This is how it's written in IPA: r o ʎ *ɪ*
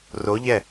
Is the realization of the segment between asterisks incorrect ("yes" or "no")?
yes